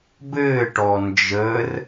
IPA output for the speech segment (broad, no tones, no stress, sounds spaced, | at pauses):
b ɘː ʈ ɔ n d͡ʒ ə r